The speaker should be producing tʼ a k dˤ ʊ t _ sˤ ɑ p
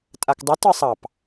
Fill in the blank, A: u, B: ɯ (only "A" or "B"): B